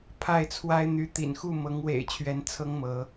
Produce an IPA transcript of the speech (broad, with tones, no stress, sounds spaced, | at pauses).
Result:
pʰ a˥˨ ɪ̯ t͡sʰ w a˦ ɪ̯ n̪ y˨˦ t̪ ḭ˨˩ n x u˥˨ m ɤ˨˦ ŋ w ḛ˨˩ ɪ̯ t͡ɕʰ ɥ ɛ˨˦ n t͡sʰ ɤ˦ ŋ m ɤ˨˦